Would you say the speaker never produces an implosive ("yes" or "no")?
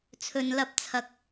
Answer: yes